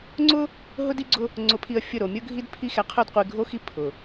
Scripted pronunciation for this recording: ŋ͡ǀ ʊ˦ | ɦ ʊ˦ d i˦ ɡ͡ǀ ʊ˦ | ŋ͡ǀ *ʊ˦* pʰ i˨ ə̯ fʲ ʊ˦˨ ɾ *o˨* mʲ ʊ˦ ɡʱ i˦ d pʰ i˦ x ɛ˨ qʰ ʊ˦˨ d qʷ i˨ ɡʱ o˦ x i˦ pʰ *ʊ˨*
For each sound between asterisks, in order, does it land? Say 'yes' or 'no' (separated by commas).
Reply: no, yes, yes